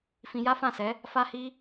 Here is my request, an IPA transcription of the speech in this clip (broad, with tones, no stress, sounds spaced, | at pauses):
f ĩ˧ j a˦ f ã˦˨ s ɛ˨˦ | f a˦ h i˦